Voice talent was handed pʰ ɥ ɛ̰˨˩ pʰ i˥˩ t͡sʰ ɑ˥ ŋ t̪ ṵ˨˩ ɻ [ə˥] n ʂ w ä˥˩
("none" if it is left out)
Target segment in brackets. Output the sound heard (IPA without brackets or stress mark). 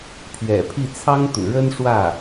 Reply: ə˥